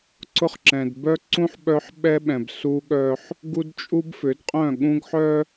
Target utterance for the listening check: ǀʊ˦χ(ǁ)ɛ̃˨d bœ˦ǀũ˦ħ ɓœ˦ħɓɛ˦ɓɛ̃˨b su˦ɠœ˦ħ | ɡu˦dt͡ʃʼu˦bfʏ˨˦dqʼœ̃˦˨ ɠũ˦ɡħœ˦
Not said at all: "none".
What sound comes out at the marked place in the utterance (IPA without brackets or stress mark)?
ǁ